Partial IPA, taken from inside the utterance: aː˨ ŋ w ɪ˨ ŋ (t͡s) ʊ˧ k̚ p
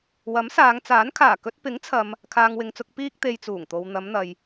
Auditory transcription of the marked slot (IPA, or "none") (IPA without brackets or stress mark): t͡s